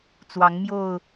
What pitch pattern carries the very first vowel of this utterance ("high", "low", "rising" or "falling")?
rising